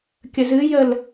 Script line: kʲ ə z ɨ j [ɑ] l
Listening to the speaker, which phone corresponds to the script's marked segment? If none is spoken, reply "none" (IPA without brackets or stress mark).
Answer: ə